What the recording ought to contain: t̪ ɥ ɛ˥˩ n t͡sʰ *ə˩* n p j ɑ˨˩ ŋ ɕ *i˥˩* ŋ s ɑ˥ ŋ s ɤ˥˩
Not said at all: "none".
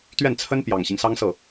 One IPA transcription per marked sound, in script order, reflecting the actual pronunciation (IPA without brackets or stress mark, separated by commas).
ə˥, i˦